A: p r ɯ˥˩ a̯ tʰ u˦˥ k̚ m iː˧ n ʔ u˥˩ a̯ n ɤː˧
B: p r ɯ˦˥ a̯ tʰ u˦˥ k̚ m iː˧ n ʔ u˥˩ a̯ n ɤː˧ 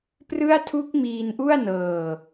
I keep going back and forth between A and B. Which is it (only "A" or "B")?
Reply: A